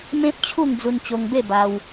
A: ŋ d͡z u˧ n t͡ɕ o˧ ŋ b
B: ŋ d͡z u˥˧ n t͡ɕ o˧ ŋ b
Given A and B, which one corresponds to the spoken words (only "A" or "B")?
A